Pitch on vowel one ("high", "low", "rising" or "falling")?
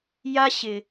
high